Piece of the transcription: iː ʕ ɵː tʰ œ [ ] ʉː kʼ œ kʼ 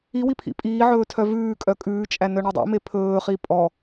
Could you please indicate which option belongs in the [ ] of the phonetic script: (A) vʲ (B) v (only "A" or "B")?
B